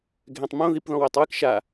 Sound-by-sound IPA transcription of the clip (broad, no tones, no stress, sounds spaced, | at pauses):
ɡʱ ɛ̃ tˤ m õ ð i p ð ɔ̃ w ɛ tˤ w ɨ k ʃ a